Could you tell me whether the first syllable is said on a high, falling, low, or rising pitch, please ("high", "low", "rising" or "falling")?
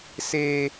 low